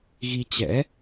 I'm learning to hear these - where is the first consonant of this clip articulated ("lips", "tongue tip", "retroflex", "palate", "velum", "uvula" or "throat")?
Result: velum